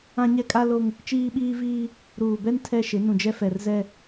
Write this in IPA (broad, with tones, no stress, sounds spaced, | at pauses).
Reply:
ã˦ ɲ ɛ˦ kʼ a˦ l o˦ ŋ | t͡ʃ iː˦ ɓ iː˦ v iː˦ | ɾ uː˨ b ɛ˦ n tʰ ɛ˦ ʃ ɪ˨˦ n ũ˨ d͡ʒ ɛ˦ f ɛ˨ r z ɛ˦